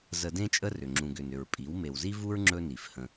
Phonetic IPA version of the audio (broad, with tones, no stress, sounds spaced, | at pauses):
z ə˧ d ẽ˦ t͡ʃʼ ə˦ r ʏ˨ ŋ͡ǁ ũ˨ ɡ ʏ˨ n ʏ˨ ɹ pʼ i˨˦ w m e˨ w z i˦ v u˦ ɹ ŋ͡ǁ ɵ˦ n i˨ f h ə̃˧